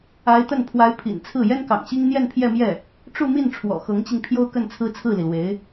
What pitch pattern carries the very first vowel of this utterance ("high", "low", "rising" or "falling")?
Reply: rising